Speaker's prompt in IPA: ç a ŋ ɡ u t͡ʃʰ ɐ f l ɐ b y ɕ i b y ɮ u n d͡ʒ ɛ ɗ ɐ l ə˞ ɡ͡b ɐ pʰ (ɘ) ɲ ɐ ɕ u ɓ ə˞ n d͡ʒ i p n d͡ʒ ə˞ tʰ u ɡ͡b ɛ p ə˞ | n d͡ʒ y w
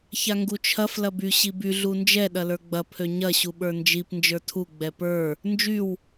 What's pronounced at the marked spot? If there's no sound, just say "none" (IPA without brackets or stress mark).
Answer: ø